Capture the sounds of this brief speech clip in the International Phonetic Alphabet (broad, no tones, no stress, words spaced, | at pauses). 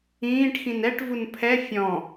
ĩːʈ xĩnɛʈ vunpʰɛ fʲɔ̃